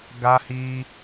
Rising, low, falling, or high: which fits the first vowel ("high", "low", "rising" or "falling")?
high